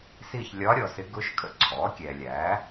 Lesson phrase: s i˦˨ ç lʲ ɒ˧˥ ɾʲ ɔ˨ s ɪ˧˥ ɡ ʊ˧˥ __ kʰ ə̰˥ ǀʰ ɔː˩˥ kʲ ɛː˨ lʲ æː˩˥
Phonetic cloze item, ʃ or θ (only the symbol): ʃ